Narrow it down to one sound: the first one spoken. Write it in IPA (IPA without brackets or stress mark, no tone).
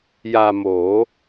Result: j